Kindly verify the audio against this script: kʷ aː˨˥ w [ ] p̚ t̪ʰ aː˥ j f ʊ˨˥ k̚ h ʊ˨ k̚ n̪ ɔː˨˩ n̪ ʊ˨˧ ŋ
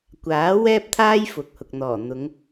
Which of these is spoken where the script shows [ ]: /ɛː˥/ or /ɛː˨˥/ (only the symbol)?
ɛː˥